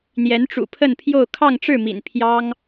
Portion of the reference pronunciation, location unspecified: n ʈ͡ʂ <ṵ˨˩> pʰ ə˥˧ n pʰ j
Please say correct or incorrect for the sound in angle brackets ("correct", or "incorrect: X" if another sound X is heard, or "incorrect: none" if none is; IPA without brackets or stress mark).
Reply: correct